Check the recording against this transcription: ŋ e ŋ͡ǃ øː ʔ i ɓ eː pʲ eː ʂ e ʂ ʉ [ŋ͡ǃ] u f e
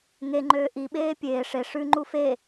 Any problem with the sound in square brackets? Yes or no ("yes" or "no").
no